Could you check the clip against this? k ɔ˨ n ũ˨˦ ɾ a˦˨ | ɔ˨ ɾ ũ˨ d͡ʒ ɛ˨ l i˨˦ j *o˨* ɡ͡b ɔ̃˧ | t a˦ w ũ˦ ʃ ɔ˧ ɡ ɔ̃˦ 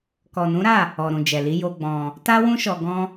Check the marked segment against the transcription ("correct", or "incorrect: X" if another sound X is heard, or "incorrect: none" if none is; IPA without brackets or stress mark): incorrect: o˧